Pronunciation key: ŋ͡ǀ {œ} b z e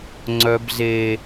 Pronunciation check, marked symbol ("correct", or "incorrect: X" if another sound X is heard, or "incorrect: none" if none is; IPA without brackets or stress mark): correct